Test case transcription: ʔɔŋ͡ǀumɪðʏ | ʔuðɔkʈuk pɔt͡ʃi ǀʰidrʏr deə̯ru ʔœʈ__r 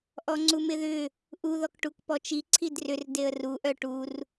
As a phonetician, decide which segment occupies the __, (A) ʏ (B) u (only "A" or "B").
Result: B